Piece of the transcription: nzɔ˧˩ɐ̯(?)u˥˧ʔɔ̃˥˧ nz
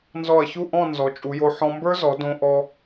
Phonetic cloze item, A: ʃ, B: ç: B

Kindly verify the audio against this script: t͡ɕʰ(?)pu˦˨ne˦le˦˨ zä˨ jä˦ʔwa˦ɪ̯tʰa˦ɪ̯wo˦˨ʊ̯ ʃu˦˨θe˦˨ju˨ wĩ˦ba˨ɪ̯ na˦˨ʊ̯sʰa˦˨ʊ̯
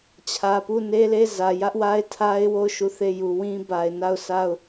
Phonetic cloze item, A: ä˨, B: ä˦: A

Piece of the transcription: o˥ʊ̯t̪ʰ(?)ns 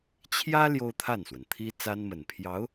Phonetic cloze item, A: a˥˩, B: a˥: A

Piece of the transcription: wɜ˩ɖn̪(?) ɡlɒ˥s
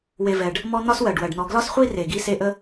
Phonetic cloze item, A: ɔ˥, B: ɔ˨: B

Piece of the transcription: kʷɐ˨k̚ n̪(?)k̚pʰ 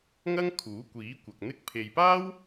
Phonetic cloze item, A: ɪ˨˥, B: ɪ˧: B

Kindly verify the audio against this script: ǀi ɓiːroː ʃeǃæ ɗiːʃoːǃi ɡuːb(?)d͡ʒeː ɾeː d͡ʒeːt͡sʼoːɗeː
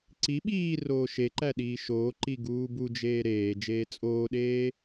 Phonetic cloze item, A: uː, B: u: B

